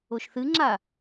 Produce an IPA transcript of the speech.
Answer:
oʃθɨŋ͡ǁa

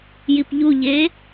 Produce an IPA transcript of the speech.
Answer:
jipʎuʎe

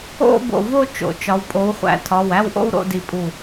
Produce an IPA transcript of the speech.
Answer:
o̰˥˧bo̰˧˩vo˥˧ t͡ʃo̰˨˦t͡ʃɒ˨˦w pʼo˨˦w χʷæ̰˨˦tʰɒ˩˧˩wæ˥˧wʔo̰˥˧w ɾo̰˥˧di˧˩pʼu˧˩

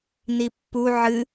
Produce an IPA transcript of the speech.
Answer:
nipːu ʕɨ

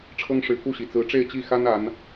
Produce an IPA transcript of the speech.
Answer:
ʈ͡ʂʰɤ˥ŋʂɻ̩˧˥ku˥˩ɕi˨˩ t͡sɹ̩˧˥ ʈ͡ʂe˥˧ɪ̯t͡ɕi˥˩xa˥n a˧˥n

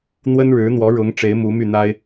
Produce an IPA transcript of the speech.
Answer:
n̪wə˥nɻɻ̩˧˥ n̪wɔ˧˥ɻʊ˧˥ŋ ʈ͡ʂe˧˥ɪ̯mu˧˥my˥˩n̪a˥ɪ̯

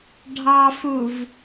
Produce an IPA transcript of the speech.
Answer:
ɖʱɑfuv

